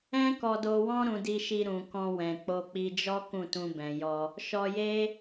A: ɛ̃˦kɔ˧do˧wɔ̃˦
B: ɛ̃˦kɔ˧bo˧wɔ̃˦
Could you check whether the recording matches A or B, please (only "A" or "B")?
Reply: A